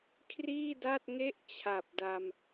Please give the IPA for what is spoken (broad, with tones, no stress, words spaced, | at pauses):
kʰriː˥˩da˥˩t̚ŋe˥˩ʔ t͡ɕʰa˨˩p̚da˧m